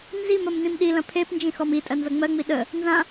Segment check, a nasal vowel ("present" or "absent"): present